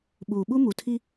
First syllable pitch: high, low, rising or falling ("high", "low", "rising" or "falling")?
low